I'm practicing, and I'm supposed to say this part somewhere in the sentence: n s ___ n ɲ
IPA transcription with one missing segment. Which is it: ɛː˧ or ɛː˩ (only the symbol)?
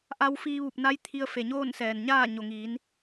ɛː˩